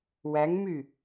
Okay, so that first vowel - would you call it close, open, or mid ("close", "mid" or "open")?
open